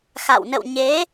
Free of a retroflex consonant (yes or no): yes